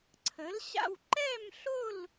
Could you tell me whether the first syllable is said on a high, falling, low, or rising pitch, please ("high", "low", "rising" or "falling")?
rising